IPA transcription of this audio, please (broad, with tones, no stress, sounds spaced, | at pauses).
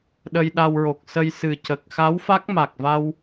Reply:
ɗ ə˧ j ɗ a˧ w ɹ o˨˩ k̚ s ə˧ j s ɨ˨˩ c ə˨˩ k̚ x a˧˥ w f a˦˥ k̚ m a˨˩ k̚ v a˧ w